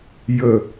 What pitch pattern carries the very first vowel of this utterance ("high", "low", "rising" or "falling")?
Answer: low